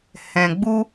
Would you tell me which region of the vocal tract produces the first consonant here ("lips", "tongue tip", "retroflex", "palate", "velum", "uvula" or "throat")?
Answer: throat